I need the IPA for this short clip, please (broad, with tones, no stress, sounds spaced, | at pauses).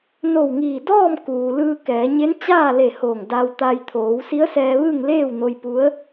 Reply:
n o˧˩ w ŋ iː˧˩ d ɔː˥˨ m k uː˩ l ɯː˧ k ɛː˩˧ ɲ e˧˥ n t͡ɕ aː˥˨ l e˧˩ h oː˧˩ ŋ d aː˧ w t̪ aː˧ j t̪ʰ oː˩˧ w s i˧˥ ə̯ s ɛː˧ ʋ ɯː˥˨ ŋ l eː˥˨ w n o˧ j p u˧˥ ə̯